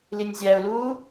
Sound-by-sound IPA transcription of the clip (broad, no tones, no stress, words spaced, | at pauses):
linʲzʲæʊ̯luː